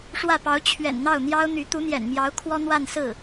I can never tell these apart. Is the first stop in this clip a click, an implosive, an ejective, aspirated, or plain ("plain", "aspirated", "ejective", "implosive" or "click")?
plain